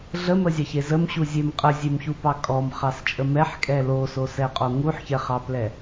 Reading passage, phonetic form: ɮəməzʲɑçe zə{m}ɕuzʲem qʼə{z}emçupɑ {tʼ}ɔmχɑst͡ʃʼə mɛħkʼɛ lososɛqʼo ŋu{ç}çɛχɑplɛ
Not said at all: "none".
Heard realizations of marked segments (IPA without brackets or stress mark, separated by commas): m, zʲ, kʼ, ħ